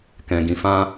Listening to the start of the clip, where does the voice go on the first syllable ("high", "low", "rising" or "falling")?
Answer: low